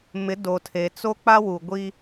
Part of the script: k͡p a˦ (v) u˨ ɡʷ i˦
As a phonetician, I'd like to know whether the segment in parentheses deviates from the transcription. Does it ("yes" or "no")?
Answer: yes